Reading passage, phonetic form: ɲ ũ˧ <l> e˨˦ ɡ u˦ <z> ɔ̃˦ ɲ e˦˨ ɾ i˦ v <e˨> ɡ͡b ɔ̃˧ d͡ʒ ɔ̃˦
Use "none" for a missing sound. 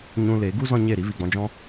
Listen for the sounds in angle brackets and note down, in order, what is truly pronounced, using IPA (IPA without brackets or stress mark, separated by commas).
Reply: l, z, i˨